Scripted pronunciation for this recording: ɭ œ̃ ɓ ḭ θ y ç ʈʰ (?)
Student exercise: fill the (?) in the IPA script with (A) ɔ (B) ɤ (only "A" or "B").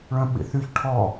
A